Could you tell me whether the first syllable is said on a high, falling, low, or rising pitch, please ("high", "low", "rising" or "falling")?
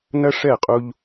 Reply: high